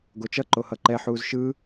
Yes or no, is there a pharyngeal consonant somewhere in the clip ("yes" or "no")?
yes